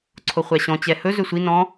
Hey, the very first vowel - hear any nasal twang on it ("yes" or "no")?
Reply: no